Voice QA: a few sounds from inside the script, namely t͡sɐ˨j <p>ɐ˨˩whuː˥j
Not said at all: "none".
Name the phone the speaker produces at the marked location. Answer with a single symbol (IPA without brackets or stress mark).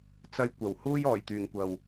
kʷ